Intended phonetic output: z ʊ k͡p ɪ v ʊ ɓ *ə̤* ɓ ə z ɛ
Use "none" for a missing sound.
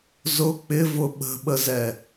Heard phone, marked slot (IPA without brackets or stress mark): ə̤